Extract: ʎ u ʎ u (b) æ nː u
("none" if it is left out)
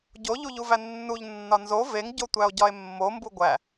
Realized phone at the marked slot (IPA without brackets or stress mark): v